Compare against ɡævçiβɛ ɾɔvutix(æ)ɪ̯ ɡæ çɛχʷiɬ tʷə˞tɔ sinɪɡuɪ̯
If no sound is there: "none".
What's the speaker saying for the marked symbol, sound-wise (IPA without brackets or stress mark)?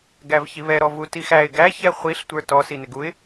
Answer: æ